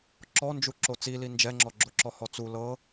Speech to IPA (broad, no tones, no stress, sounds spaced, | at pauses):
ǁ ɔ n d͡ʒ u ǁ o t͡s i l i n d͡ʒ ɛ ŋ͡ǁ ɔ ɡ͡ǁ o ǁ ɔ h ɔ t͡s u l ɤ